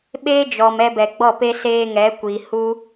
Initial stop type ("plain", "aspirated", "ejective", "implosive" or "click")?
implosive